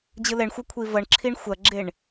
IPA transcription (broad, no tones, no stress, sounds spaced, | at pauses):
d͡ʑ ɯ l ɛ ɳ xʷ ɐ kʷʰ i v ʌ ɳ ǁʰ i ɳ xʷ ɐ ɡ͡ǁ e ɳ